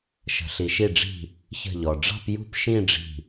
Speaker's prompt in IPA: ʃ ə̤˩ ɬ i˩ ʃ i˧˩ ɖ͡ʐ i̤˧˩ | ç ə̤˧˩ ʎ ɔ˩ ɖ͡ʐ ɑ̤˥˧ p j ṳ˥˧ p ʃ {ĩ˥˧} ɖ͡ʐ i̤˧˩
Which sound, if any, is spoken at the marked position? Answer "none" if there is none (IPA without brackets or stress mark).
ĩ˥˧